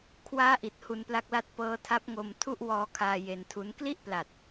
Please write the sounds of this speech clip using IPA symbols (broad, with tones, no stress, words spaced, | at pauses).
kʰwaː˦˥ʔi˨˩t̚ hu˧npla˦˥k̚la˦˥t̚ pɤː˦˥tʰa˦˥p̚ŋo˧m tʰu˥˩ʔwɔː˧kʰaː˧ je˧ntʰu˦˥n kli˥˩ʔpla˨˩t̚